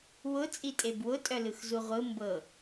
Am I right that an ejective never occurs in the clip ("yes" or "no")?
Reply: no